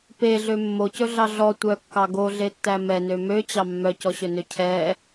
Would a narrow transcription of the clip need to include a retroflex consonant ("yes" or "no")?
no